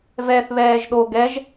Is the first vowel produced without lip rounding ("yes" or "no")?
yes